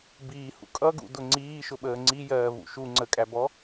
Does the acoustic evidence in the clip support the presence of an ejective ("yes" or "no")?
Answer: yes